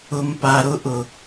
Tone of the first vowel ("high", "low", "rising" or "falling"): low